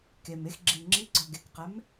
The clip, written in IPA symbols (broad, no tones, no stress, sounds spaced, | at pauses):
k e m e x ɡ͡ǁ i ŋ͡ǁ i ɡ͡ǀ ɔ ɡ e k q ɛ m